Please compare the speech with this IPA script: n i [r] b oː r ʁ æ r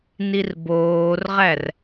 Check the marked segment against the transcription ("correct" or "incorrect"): correct